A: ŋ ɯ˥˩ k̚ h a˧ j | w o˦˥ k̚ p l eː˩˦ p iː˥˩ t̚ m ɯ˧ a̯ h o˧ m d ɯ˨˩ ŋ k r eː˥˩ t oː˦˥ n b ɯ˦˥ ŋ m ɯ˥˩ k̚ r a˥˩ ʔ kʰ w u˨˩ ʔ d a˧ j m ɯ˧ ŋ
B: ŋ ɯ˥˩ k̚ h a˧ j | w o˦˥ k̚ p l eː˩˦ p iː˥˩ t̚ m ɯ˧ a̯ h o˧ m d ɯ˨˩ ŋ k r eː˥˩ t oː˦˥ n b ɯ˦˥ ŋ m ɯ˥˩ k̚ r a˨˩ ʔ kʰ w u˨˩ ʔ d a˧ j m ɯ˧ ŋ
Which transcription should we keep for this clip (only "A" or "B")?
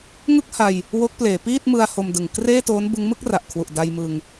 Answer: B